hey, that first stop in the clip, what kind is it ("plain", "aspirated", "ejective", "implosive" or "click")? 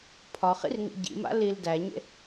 aspirated